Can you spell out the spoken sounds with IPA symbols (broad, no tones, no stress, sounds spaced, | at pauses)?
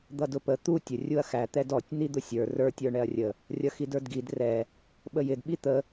d̪ ʌ d ʊ p ə t̪ u tʲ ə rʲ u ɐ̯ x æ t̪ ɛ d ɔ tʲ n̪ i d̪ ʊ sʲ ə˞ r ə˞ tʲ ə˞ ɳ ɛ ɐ̯ rʲ ə | rʲ ʌ x i d ə˞ d ɡ i d r ɛ | ɓ ə j ɪ d ɓ i t̪ ə